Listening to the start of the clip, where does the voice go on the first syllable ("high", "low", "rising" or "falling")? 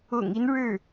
low